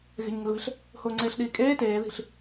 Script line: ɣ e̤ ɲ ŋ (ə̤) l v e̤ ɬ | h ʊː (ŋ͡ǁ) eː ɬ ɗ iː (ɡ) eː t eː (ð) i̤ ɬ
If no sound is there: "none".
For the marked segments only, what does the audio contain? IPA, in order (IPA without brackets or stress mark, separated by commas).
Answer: ə̤, ŋ͡ǀ, kʼ, ð